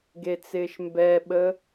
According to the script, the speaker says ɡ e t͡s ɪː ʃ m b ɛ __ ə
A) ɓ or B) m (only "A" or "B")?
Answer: A